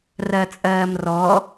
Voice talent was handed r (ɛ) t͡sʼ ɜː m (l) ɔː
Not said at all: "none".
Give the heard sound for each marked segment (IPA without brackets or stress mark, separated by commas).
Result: ɜ, r